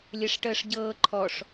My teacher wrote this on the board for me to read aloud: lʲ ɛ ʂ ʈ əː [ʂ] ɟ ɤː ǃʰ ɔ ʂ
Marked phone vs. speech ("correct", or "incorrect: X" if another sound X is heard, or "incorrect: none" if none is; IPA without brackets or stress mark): correct